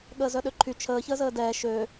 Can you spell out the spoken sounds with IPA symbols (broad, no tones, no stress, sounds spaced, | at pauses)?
ɠ əː z œ ɗ ø ǃʰ y t͡ʃʰ əː ç əː z əː d ɛː ʃ ø